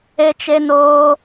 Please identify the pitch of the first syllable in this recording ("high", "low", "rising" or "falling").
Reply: high